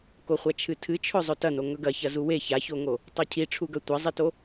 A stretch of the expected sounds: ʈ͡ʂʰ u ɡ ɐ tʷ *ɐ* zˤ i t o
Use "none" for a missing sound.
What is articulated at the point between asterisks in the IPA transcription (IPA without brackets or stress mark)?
ɐ